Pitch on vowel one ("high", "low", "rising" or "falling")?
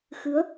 rising